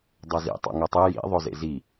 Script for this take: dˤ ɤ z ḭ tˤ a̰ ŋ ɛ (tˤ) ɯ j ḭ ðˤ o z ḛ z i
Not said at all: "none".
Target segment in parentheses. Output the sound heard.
tˤ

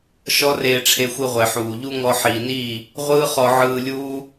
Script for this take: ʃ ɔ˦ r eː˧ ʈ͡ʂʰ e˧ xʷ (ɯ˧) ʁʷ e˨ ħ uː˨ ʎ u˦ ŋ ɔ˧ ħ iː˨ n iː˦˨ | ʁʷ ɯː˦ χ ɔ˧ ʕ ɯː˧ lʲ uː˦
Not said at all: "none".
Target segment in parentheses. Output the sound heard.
ɯ˧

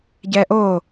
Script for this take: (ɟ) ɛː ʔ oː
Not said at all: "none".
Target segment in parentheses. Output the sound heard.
ɟ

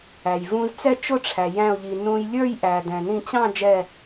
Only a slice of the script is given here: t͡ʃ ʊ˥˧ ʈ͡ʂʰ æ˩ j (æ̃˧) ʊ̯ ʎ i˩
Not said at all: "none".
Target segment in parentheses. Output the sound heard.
æ̃˧˩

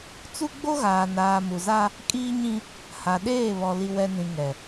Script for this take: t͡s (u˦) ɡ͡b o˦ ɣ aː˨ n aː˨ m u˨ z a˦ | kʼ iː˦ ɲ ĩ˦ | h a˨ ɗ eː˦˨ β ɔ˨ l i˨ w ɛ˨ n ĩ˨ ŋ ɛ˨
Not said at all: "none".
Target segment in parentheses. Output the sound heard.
u˦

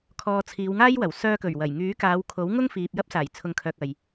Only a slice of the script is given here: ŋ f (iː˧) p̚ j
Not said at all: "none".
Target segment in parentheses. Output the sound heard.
iː˨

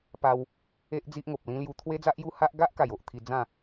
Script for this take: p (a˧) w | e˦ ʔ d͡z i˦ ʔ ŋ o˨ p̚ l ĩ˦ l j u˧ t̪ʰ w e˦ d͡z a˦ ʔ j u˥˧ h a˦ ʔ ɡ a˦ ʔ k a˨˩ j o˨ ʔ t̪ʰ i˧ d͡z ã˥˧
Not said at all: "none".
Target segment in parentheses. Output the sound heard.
a˧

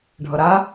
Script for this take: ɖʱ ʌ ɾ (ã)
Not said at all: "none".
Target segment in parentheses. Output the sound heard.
a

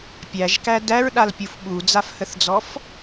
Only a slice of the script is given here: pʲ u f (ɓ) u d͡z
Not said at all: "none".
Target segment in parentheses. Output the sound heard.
ɓ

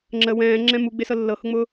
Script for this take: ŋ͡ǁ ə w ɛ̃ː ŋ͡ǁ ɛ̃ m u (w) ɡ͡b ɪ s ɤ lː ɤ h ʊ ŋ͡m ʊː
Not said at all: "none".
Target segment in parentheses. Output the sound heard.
none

